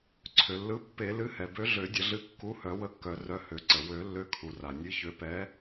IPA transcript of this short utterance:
ǀʰ ø˩ lː ɯ˨˥ pː e˨˩˦ l ɨ˨˥ h ɛ˩ b ø˨˥ ɮ ø˨˩˦ dʲ ə˨˩˦ ɮ ɨ˨˥ kː u˨˥ h œ˨˩˦ w ə˨˥ kː œ˨˩˦ r œ˨˥ h ø˨˩˦ ǀ ə˩ w ø˨˩˦ lː ø˨˥ kʰ u˩ r a˩ nʲ ɨ˨˥ ç ø˨˥ p ɛ˨˥

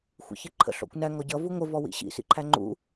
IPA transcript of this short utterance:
xʷ ḭ ç ɪ ǃʰ ə̰ ɬ ɔ̰ kʷ n æ ŋ ɔ ɟ ʌ v u ŋʷ ə v ɔ w ḭ ɕ ḭ s ḭ ǃʰ æ ŋ͡ǃ ṵ

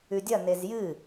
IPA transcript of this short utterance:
ʉ dʲ ɐ n e z j ɨ

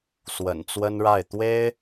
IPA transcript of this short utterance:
s w ə̰˨˩ n t͡s w ə˥ n ɻ a˥˩ ɪ̯ t̪ w e˥ ɪ̯

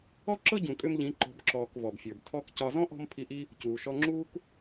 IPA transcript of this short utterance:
ɔ˦ ǁ ɤ˦ ɟ ũ˨ kʼ ʏ˦ m ʎ ĩ˨˦ ǃ ɔ̤˨˦ b ǁ ɔː˨ k v ɔ˨ b fʲ ə˞˨ b tʰ ɔ˦ k c ɒ˧ z ɔ̃˦ ʔ ɔ̤˧ m pʰ i˧ ʔ i˦ | c uː˨ ʃ ɔ˧ ŋ͡ǁ uː˦ k

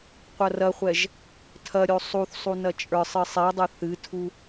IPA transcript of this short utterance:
qʷ ɐ r ɐ χʷ ɛ ʒ | tʰ ɐ ɾʲ o sˤ u θ sˤ u n ɐ t͡ʃʼ ə˞ sˤ ɨ sˤ i dˤ ɨ θ ɨ tʰ u

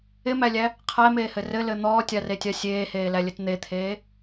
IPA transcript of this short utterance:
ɪ m æ lʲ æ | qʰ æ m eː h ɘ r ɘ l ɘ n̪ ɔː tʲ a r e tʲ a sʲ eː h eː l æ lʲ ɘ t n̪ e t̪ʰ eː

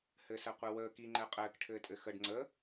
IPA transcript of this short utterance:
h ɘː s ɛ qʷ i w əː k i ŋ͡ǃ ɛ qʼ ɘː k ʈʰ ɘː tʼ ɘ x ə ɖ ŋ͡ǀ ə

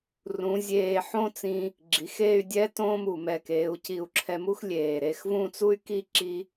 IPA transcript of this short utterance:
r ũ˩˧ zʲ eː˧˩ ħ õ˥˧ t͡s ĩ˧ | ɡ͡ǁ i˩˧ x eː˥˧ y̯ dʲ ɛ˥ t õː˥ m u˧˩ m ɛ˧˩ k eː˩˧ u̯ c i˧˩ u̯ ǁʰ ɛ˧ m u˥ x lʲ eː˧˩ ɾ e˧ x v ũ˥˧ t͡s u˥ y̯ k i˥ ǁ i˥

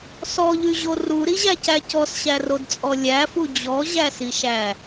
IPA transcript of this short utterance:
s ɔ ʎ y ʑ o r u ɾ i ʑ æ c æ c ɔ s ɕ æ r o d t͡sʼ ɔ lʲ æ f u d͡ʑ ɔ ʑ æ s i ʃ æ

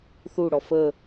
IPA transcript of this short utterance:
θ u ɽ ɔ f ə

